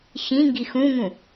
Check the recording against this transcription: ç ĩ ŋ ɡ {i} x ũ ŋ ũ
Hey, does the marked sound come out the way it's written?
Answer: yes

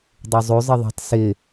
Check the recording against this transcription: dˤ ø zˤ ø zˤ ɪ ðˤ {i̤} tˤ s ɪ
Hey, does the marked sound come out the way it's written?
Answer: no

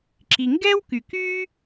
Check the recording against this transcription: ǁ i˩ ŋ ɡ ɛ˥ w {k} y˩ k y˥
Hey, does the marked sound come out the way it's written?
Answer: yes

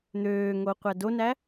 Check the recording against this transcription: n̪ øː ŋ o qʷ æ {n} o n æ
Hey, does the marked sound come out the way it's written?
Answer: no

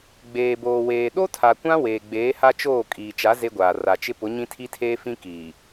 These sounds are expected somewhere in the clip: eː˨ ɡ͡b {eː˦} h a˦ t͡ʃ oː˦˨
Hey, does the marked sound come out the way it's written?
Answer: no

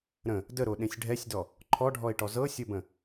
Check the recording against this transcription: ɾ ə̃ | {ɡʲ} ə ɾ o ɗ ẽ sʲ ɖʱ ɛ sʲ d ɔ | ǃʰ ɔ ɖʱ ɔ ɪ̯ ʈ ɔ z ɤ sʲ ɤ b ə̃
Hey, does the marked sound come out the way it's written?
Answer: no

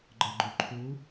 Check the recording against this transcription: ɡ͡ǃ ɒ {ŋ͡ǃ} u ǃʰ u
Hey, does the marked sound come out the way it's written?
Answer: no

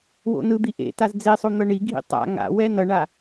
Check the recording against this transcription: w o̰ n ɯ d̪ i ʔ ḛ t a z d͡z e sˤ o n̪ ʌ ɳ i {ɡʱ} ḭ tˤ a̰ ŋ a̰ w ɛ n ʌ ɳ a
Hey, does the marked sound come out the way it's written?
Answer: yes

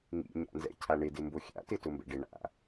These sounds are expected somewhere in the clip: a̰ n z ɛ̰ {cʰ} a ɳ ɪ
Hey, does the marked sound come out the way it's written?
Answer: yes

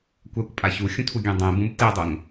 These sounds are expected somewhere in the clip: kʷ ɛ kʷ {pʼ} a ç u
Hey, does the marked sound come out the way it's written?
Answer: yes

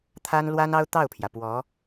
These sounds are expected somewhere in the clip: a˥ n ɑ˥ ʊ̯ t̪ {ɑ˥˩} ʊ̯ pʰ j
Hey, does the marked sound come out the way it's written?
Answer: yes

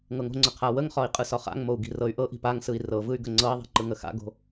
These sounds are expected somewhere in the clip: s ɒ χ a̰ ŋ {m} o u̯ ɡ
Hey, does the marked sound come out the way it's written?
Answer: yes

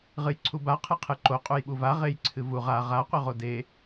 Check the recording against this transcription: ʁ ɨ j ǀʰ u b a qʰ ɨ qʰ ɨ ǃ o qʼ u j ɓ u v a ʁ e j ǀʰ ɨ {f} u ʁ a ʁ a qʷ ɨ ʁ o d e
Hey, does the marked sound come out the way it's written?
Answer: no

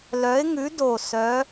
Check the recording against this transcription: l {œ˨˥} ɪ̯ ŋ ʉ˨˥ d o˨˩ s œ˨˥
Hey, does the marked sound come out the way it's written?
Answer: yes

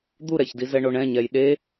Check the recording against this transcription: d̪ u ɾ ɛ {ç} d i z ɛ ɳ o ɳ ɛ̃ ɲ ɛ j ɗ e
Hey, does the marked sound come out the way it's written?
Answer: yes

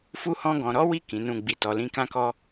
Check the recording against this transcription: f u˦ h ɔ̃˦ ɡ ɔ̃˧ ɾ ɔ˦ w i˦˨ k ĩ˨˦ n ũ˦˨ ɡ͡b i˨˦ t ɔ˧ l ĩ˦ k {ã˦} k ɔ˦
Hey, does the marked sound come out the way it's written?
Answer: yes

